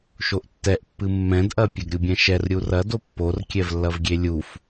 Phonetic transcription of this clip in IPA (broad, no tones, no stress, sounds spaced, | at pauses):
ʃ o ʔ tː ɛ ʔ pː ɨ mː ɛ̃ d ʔ ɐ pʲ ɐ ɡ ɾʲ u bʲ ɛ̃ ʃ ɛ r ɾʲ u r ɐ d o pː o r kʲ ɛ v lː ɐ v ɡʲ e lʲ u f